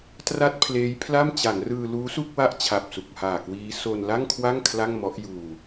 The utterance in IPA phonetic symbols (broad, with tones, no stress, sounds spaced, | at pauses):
t r a˥˩ t̚ pʰ l eː˦˥ j pʰ l a˥˩ m t͡ɕ a˩˦ n r ɯː˧ l uː˦˥ s u˥˩ k̚ w a˦˥ ʔ t͡ɕʰ a˨˩ p̚ s u˨˩ k̚ h aː˨˩ k w iː˦˥ s o˧ n l a˥˩ ŋ kʰ w a˥˩ ŋ kʰ l a˥˩ ŋ m ɔ˦˥ ʔ j uː˧